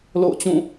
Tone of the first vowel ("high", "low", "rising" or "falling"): falling